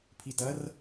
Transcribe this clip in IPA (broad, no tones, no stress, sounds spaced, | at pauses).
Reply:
pʰ i t ɐ r